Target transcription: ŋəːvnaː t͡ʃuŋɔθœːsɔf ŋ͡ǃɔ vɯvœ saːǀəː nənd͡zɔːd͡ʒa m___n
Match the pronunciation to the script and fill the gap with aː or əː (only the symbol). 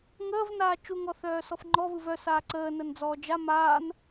aː